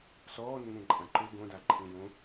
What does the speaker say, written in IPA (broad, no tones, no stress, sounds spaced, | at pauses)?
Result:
s ɔː nː ẽ ǃʼ ã ǃ u ɡ õ d a ǃʰ ĩ j õ